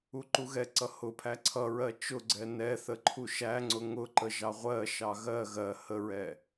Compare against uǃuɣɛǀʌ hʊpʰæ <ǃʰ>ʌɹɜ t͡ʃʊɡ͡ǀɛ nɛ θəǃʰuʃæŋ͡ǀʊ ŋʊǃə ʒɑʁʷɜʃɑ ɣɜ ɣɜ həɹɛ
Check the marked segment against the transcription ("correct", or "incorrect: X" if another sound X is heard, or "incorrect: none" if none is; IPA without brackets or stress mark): incorrect: ǀʰ